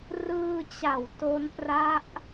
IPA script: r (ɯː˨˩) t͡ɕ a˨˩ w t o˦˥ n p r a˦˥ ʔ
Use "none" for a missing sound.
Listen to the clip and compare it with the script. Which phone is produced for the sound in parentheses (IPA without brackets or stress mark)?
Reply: ɯː˧